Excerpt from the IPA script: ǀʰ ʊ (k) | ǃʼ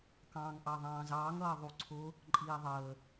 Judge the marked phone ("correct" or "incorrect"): incorrect